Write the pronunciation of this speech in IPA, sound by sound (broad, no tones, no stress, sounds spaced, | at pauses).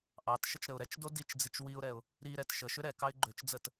ʔ ɑ t ʃ ə t͡ʃ ɾ ə ʊ̯ ɾ ɛ t͡ʃ d o d i t͡ʃ d͡z i t͡ʃ w i ʊ̯ ɾ ɛ ʊ̯ | ɾ i ɾ ɛ t ʃ ə ʃ ʏ ɾ ɛ k ɑ ɪ̯ ɡ͡ǃ ø t͡ʃ d͡z ə t